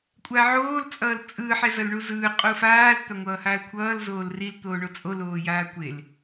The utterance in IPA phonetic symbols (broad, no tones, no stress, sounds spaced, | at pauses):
kʷʼ a ʕ oː l t͡sʼ ʌː l t͡sʼ ɯː ħ ɛ z ʌ l ɳ u z ɯː qʼ u f aː l t̪ a ŋʷ ʌː h aː l kʷʰ ʌː l z oː l r i l t̪ oː ɳ o t͡sʼ o l oː j aː kʷ e l